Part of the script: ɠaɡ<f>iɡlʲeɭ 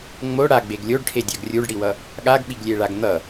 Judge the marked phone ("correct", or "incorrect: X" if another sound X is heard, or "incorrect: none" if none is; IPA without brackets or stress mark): incorrect: ɓ